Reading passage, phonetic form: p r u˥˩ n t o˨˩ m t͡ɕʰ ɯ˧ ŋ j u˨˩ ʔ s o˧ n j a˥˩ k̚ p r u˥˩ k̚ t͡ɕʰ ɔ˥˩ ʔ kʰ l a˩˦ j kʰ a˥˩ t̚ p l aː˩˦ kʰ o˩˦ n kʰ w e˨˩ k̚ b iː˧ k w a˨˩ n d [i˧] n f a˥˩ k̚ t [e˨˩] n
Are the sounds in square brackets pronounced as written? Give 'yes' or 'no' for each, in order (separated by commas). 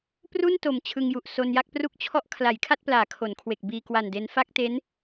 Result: no, no